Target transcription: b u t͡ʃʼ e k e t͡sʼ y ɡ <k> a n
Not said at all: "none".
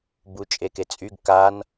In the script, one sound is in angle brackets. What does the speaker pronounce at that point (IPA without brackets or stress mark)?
k